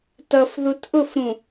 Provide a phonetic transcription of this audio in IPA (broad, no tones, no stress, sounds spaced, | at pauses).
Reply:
t ʌ f ð u t ʔ ʊ f ɾ ũ